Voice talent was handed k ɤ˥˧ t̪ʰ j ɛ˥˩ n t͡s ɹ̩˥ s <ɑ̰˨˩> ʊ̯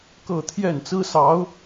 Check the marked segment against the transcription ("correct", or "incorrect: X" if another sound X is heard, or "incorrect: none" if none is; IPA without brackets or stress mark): incorrect: ɑ˧˥